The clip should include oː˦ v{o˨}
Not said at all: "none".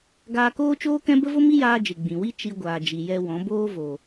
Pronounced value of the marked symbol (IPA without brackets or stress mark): o˨